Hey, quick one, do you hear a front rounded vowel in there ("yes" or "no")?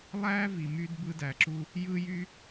yes